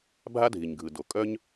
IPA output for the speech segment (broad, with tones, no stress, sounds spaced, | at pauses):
bʱ a˥ dʱ i˩ ɲ ɡʱ ɯ˩ d o˩ kʼ œ˥ ɲ